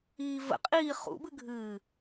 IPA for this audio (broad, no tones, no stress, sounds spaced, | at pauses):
iː v ə̰ qʼ iː χ ṵ b ɨ ɡʱ ɨː